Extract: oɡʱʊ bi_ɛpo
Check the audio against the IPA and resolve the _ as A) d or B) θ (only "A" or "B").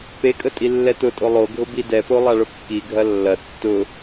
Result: A